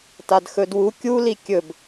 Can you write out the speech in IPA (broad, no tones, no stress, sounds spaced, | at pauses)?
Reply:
t a d x ɵ d w u kʲ u l i kʲ ɵ b